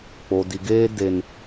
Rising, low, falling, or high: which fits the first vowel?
low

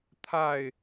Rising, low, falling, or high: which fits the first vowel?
falling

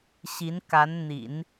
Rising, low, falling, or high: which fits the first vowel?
rising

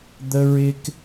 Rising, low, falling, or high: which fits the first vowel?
high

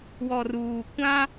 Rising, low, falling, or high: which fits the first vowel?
low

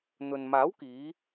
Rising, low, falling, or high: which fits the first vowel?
low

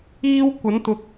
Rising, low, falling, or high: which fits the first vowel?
high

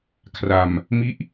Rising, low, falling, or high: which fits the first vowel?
low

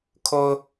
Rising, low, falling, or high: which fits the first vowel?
high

